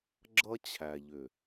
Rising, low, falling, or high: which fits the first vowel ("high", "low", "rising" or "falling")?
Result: high